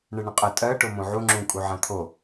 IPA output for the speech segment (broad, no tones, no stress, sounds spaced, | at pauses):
ɳ ə ɳ ə̃ qʼ ə tʼ ɜ ʈ o m õ ʕ u ŋ͡ǁ ũ kʼ u ʕ ã t̪ʰ o